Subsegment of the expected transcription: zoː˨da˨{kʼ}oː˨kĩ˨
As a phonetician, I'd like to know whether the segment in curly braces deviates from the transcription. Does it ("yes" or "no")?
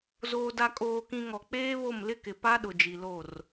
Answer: no